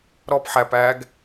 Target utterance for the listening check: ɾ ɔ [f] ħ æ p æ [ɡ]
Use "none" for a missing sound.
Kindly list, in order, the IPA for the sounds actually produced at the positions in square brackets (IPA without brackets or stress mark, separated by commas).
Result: p, ɡ